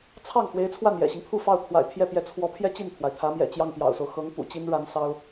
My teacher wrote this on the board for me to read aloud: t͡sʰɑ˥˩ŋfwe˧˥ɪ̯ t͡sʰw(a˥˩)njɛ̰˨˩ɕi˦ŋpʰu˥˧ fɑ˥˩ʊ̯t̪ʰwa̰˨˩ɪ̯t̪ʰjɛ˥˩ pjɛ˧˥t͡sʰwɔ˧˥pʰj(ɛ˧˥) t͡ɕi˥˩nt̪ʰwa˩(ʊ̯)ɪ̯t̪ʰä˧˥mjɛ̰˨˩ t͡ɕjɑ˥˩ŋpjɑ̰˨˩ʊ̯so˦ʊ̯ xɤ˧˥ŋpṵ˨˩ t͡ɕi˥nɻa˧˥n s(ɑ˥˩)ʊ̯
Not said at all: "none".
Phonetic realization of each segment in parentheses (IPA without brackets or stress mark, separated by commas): a˥˩, ɛ˥, none, ɑ˥